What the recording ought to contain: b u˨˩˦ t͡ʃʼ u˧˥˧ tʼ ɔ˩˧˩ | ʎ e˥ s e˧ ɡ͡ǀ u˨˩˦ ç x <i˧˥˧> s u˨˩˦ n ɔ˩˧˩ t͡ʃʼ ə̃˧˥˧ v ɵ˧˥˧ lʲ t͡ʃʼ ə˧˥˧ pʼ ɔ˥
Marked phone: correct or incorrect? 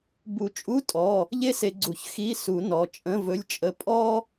correct